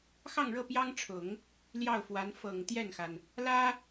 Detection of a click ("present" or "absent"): absent